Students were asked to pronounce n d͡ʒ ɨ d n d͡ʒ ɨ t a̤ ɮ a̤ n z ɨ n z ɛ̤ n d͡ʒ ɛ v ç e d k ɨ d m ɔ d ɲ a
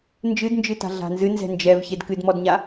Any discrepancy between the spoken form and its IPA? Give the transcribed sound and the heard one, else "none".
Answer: none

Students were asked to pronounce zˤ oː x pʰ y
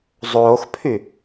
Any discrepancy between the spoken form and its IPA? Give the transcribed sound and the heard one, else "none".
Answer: none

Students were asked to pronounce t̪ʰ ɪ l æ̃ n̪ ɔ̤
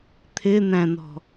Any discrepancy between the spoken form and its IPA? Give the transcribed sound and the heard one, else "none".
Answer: l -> n̪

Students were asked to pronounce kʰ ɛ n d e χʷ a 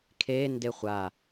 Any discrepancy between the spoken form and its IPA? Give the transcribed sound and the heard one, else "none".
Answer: ɛ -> e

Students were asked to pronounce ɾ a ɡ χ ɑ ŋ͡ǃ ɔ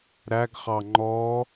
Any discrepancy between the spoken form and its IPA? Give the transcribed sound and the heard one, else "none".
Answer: a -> æ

